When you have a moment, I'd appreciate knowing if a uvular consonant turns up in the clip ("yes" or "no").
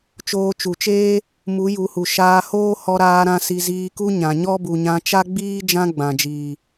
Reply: no